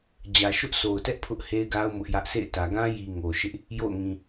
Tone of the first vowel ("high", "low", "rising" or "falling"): low